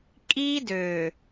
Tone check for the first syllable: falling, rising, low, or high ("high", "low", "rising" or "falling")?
high